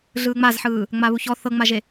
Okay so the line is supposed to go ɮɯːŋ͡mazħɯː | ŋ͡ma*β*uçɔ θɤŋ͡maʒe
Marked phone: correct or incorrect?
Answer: correct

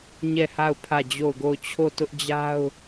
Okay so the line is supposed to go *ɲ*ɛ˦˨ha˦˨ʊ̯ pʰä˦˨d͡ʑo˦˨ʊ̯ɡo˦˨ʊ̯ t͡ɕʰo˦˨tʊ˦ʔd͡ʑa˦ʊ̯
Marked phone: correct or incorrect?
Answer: correct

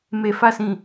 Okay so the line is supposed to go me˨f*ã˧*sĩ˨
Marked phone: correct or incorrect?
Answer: incorrect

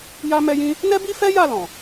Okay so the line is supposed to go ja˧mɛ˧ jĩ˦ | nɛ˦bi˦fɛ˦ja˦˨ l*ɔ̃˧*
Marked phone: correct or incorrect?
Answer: incorrect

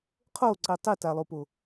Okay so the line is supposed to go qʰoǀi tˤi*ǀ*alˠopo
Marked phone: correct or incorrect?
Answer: incorrect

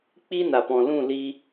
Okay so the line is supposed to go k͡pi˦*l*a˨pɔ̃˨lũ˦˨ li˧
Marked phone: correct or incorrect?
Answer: incorrect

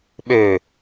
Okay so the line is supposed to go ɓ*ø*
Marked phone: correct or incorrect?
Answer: correct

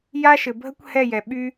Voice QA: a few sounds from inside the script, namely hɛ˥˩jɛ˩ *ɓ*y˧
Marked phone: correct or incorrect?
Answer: correct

